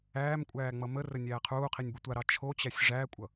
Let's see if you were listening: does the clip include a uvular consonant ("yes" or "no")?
yes